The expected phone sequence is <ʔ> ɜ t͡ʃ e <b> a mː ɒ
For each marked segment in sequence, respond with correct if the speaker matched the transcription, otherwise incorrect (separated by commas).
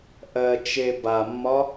correct, correct